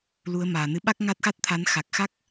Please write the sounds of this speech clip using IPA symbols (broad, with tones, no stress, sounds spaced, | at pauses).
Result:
l u˨˦ ə̯ m aː˨˩ n ɨ˨˦ ɓ a˦˥ k̚ ŋ a˦˥ t̚ x a˦˥ t̚ t̪ʰ a˨˦ n x a˨˩ k̚ x a˦˥ k̚